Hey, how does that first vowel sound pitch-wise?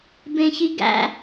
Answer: high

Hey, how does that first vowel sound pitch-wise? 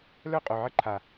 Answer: falling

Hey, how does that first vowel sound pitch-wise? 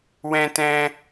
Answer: high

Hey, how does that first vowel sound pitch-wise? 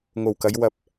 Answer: low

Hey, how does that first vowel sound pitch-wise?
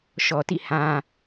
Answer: low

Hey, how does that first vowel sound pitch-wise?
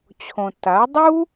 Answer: low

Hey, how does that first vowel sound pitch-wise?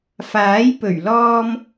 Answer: rising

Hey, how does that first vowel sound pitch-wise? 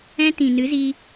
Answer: high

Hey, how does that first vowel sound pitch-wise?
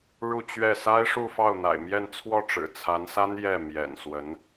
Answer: falling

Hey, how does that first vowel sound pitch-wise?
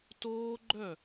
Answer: high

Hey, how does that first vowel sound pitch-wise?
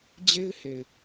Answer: high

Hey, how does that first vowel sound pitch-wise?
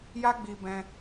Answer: high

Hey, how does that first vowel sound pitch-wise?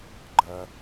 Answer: high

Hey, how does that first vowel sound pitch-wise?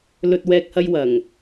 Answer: low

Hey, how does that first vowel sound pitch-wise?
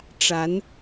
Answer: rising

